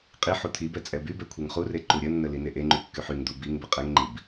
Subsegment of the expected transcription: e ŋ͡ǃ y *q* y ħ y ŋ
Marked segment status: incorrect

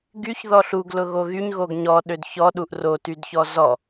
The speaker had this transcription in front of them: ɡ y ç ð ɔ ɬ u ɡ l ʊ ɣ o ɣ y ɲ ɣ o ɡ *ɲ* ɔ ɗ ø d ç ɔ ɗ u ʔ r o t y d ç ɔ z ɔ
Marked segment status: correct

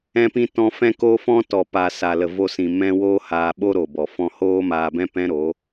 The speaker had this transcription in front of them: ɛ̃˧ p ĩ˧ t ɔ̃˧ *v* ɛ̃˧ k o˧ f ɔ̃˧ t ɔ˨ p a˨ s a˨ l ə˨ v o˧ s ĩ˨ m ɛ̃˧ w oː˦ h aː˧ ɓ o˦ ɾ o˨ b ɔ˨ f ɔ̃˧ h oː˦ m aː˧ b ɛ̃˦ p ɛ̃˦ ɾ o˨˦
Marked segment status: incorrect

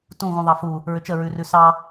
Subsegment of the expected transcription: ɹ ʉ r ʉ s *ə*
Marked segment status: incorrect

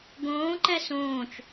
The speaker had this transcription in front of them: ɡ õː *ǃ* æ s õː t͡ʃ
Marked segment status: correct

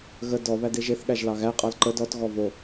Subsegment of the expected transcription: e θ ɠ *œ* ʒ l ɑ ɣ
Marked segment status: incorrect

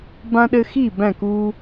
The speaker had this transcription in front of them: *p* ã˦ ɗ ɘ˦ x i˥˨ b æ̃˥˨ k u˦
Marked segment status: incorrect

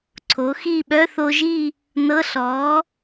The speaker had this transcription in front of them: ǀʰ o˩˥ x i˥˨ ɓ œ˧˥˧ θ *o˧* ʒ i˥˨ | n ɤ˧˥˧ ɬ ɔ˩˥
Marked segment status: correct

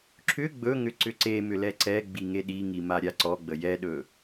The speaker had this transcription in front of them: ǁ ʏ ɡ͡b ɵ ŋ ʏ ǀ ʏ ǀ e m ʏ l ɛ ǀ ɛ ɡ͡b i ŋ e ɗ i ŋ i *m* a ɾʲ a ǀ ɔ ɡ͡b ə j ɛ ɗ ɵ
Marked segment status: correct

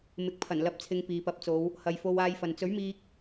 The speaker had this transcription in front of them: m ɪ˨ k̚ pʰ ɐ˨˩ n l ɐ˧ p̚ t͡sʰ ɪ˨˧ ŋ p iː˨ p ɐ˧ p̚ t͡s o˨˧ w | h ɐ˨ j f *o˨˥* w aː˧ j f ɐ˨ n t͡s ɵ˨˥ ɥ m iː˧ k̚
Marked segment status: incorrect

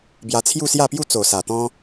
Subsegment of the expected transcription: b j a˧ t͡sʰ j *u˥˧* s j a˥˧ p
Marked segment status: correct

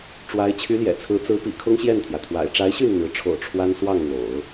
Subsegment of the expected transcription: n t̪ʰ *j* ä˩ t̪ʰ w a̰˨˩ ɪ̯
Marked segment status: correct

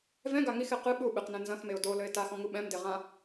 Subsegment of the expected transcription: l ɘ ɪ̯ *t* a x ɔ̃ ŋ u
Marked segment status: correct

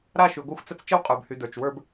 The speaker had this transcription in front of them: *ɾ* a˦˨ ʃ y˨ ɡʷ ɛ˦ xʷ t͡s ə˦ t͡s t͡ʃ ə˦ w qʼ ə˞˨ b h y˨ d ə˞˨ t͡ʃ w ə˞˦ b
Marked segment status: correct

